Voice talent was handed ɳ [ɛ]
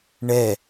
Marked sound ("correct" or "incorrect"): correct